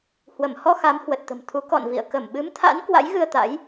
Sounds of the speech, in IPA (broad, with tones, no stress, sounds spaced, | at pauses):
h w ə˧˩ m h ɔ˧ x a˨˦ m h w ə˨˩ t̚ t̪ ə̤˨˩ m t̪ʰ u˨˦ k ɔ̰˧˨ n v ḭ˧˨ ə̯ k ə˧˩ m ɓ ɨ˨˦ m t̪ʰ a̰˧˥ n k w a̰˧˥ j ɣ ɨ˧ ə̯ t̪ a̰˧˥ j